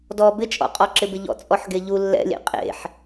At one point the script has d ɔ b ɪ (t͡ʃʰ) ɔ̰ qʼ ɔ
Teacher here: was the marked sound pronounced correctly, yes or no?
no